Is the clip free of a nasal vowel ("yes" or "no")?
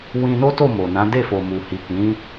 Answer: no